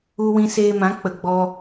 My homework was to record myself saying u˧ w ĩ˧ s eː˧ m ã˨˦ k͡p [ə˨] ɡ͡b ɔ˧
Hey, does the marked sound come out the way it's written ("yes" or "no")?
yes